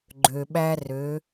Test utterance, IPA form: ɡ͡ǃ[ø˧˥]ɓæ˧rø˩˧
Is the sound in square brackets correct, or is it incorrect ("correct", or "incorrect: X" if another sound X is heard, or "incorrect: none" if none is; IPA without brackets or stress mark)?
incorrect: ø˩